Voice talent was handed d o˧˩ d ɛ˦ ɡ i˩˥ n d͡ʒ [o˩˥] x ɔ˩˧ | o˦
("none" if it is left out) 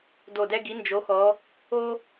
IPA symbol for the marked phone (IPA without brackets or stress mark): o˩˥